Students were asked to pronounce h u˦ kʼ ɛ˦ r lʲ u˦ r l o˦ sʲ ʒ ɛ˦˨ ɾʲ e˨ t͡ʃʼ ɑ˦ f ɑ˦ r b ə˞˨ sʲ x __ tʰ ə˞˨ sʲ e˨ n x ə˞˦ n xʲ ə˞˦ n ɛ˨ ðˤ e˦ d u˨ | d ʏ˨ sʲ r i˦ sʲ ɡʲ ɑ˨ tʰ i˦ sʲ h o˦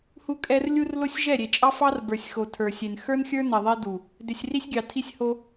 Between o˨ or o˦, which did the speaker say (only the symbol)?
o˨